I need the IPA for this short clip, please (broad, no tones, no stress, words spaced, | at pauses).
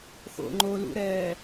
xo̰ŋ͡ǃo lṵɾɛː